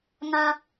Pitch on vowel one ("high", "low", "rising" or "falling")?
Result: high